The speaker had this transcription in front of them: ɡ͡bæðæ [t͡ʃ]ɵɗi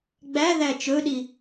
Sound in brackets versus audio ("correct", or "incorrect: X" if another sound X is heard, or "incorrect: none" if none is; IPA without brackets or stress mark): correct